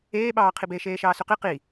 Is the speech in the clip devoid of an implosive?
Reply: no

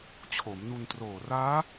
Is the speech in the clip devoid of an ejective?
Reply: yes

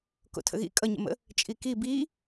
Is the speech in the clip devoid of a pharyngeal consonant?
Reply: yes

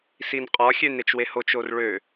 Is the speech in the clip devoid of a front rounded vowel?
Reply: no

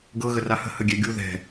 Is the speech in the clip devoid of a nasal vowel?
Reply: yes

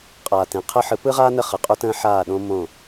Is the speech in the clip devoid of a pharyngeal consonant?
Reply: no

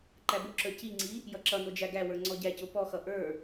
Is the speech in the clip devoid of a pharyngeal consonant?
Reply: yes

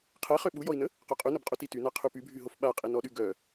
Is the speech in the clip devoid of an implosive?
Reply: no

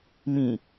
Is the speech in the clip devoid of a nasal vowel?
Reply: no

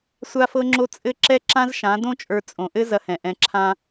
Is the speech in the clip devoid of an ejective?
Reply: no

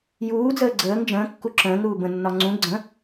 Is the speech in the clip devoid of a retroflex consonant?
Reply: yes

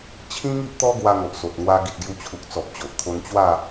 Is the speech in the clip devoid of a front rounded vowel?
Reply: yes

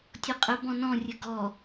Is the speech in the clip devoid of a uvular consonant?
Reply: no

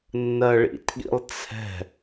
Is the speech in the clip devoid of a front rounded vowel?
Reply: yes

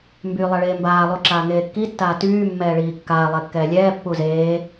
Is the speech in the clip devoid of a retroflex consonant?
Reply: no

